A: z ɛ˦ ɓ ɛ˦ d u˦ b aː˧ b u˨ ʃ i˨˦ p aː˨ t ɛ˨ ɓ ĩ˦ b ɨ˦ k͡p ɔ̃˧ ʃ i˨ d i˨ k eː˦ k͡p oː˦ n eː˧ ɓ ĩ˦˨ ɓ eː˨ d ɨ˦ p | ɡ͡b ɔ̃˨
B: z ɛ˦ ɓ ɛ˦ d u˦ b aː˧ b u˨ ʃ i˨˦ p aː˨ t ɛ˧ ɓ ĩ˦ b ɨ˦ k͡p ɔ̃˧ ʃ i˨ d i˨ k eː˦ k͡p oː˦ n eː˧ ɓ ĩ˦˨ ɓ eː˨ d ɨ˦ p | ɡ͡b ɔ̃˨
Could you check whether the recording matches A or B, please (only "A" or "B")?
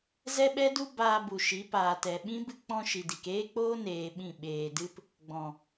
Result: A